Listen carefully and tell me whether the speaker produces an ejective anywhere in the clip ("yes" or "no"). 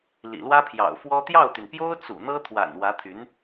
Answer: no